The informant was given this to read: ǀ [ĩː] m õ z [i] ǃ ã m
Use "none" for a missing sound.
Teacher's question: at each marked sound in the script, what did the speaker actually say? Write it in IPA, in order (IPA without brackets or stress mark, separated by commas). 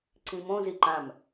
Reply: ĩ, i